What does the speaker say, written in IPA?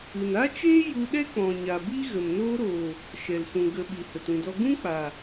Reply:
ɨ˨ n a˦ t͡ʃ eː˦ j u˧ ɗ ɛ˦ k͡p ɔ̃˨ ɲ a˨ b i˦ ɣ ə˨ m n oː˧ ɾ oː˨ | ʃ ɛ˨ l s ũ˨ ɡ ə˨ ɓ i˨ h ə˨ t ũ˨ d ɔ˧ ɡ ũ˦ k͡p a˨

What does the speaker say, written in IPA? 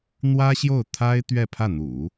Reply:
n̪ w ä˥ ɕ j o˥˩ ʊ̯ t̪ʰ a˥ ɪ̯ t̪ ɥ ɛ˥˧ pʰ ä˥˩ n̪ ṵ˨˩˦

